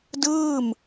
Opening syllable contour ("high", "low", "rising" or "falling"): falling